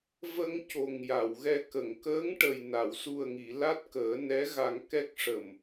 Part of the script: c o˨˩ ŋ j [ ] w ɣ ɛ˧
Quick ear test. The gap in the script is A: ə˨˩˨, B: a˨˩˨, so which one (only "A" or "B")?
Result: B